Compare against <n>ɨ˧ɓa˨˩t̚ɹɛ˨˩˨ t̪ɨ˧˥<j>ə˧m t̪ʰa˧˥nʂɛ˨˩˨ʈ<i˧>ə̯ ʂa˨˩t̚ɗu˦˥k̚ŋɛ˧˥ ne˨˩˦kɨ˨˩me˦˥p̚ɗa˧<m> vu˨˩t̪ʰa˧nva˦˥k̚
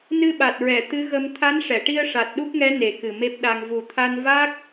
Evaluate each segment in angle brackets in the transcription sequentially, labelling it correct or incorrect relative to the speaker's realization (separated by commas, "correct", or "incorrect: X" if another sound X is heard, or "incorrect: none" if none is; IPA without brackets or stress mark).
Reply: correct, incorrect: ɣ, correct, incorrect: ŋ